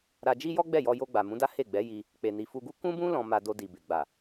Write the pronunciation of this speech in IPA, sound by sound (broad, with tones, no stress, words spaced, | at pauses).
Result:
ɾa˧d͡ʒi˦ jɔ˦ɡ͡bɛ˦˨jɔ˧jo˧ ɡ͡ba˨mũ˨˦da˦ he˦˨ɡ͡bɛ˨˦ ji˧ | k͡pe˨ni˨fu˧ɡu˦ kũ˦bũ˦ lɔ̃˧ ma˧do˧di˨be˨ ɡ͡ba˨